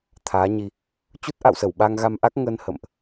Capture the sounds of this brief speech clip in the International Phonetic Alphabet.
t̪ʰaː˨˦ɲi˧ | t͡ɕu˦˥t̚ʔa̰˧˨wsə˧˩w ɓa˧ŋ ɣa˧mʔa˦˥k̚ ŋəː˧nhə̰˧˨mʔ

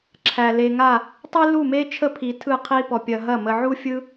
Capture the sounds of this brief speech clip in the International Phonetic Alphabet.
ǁʰæ˨le˧ŋa˦˨ | tˤi˦lu˦˨me˦t͡ʃʰə˦ pʰi˧tʰɯ˦˨qʰi˦pɔ˧ pʲɐ˧ɦɐ˦˨ mə˧ʕu˦fʲɯ˦

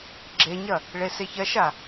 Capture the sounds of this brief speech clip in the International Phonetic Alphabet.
ɡ͡ǁeɲɐ | ɭeseçɐʃa

